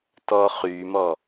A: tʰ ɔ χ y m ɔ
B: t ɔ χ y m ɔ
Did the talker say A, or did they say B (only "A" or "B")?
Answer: B